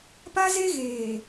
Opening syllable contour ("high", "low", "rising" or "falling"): high